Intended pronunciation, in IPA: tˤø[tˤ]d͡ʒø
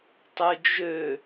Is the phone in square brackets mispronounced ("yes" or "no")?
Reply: yes